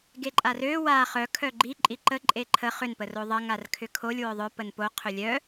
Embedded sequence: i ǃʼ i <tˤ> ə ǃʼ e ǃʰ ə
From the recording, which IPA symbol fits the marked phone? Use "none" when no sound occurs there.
ǃ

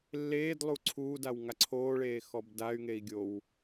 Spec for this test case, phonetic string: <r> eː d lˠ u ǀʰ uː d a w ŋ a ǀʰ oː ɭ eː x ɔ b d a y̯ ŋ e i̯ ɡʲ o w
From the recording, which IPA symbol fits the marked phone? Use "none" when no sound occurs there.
lː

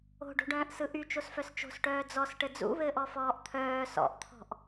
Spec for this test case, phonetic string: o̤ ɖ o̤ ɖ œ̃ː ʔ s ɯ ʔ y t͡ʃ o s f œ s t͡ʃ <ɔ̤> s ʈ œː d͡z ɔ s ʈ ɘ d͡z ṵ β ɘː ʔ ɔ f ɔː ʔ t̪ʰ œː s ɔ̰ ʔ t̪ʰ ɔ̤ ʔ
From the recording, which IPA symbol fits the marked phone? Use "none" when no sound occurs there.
o̤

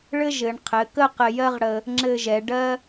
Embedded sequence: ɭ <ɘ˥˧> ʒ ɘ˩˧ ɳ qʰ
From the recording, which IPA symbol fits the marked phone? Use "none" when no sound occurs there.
ɘ˥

